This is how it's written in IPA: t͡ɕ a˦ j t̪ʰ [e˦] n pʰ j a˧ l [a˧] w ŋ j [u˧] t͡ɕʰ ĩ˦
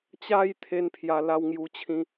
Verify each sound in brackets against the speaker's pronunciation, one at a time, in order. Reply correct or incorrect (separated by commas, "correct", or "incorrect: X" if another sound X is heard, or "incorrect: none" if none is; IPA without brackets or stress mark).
correct, incorrect: a˦, correct